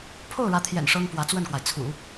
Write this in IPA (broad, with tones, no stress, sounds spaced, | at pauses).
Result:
pʰ o˥˩ ʊ̯ ɻ ä˧˥ t̪ʰ j ɛ̰˨˩ n ʂ ɤ˥ ŋ p w ä˧˥ t͡s w ə˥˩ n k w a˩ ɪ̯ t͡sʰ ṵ˨˩˦